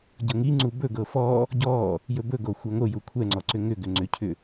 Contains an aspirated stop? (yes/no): yes